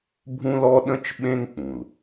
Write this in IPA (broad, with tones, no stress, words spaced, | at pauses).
bʱũ˦lɔ˦ ɗə̃˦t͡ʃ ɓẽ˦ŋk͡pũ˨l